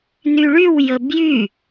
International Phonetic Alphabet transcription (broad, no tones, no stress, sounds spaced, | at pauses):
n y ɭ y w j ə b j y